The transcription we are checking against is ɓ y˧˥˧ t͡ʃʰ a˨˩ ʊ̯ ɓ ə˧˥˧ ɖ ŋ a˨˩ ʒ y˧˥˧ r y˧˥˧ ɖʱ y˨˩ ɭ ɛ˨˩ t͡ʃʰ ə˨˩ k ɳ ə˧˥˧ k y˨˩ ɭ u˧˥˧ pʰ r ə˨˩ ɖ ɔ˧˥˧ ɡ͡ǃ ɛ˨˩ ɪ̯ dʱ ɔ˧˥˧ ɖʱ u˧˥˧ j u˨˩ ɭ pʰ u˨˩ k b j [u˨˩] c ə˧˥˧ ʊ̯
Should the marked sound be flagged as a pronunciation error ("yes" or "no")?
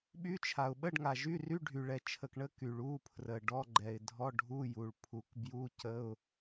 yes